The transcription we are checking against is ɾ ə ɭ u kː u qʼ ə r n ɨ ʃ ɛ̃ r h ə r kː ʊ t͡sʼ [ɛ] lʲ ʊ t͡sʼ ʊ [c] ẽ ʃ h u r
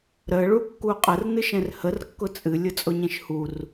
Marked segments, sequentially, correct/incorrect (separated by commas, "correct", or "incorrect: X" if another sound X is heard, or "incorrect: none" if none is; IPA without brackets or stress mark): incorrect: ɨ, incorrect: ɲ